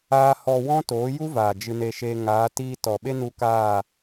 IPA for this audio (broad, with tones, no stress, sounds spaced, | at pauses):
aː˦ h ɔ˧ w ɔ̃˦ t oː˨˦ j u˦ v aː˨ d͡ʒ ɨ˧ n e˧ ʃ eː˧ ŋ aː˨˦ t iː˧ t ɔ˨ ɓ e˦ n u˧ k aː˦˨